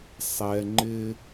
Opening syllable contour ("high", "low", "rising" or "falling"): low